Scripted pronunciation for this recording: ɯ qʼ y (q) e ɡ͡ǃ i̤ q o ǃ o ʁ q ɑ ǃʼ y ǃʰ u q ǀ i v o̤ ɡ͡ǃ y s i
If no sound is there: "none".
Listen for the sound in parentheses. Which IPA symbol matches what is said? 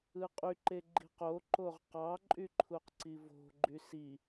ǃ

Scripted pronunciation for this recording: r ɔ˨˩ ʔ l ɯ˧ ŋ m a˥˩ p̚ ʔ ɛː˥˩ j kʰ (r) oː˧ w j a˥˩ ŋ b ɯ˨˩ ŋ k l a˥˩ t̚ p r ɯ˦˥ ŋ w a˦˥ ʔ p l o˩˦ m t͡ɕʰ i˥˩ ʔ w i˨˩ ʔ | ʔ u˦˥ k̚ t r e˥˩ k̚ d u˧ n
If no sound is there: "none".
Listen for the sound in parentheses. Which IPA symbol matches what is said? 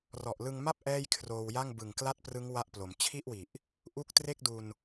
r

